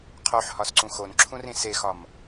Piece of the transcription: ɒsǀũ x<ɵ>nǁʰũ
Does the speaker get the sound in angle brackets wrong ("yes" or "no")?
yes